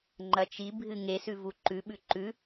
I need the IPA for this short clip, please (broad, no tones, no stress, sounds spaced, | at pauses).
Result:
ŋ͡ǃ ɐ t͡ʃ i bʱ ɨ ŋ e s ʉ v u ǃ ʉ ɓ ʉ ǃ ʉ